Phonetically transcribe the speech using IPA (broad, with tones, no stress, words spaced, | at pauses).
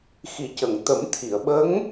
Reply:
xi˨˩˦cə˨˩˨ŋ t̪ə˨˩˦mt̪ʰi˨˩˨ə̯ɓə˧˥ŋ